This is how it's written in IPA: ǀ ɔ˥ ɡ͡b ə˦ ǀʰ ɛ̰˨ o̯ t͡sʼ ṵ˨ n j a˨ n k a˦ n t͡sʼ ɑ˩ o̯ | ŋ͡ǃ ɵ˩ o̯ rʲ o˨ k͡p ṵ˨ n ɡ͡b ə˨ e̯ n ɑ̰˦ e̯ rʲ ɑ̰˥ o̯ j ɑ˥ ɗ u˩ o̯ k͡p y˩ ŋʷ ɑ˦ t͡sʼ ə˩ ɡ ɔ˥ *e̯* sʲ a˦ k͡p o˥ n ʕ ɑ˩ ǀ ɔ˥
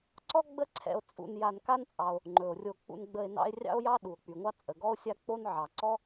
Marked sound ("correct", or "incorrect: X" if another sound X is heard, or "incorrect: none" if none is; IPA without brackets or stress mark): incorrect: o̯